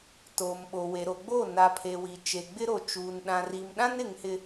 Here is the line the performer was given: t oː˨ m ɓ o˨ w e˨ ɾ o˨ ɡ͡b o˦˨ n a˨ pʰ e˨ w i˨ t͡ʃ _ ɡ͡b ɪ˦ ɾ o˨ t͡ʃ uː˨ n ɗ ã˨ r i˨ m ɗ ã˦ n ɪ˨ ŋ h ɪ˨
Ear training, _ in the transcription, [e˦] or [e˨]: e˨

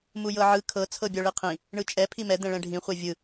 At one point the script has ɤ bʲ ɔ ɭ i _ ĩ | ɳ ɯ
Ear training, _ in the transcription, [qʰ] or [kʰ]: qʰ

